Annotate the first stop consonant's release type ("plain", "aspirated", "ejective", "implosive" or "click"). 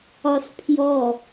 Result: aspirated